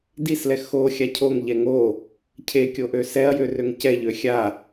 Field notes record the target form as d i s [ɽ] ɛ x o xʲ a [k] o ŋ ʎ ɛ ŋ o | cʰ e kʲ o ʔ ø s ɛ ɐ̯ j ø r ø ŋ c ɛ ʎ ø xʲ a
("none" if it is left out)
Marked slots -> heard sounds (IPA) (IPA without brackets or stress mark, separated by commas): l, cʰ